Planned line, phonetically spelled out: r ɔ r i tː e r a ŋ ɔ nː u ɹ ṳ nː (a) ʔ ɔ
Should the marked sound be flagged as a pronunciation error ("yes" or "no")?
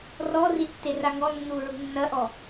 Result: yes